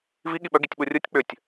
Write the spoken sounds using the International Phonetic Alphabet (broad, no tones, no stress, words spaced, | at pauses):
vi ɠiɓœ ɡitʲɓurʲutʲ k͡pʏtʲ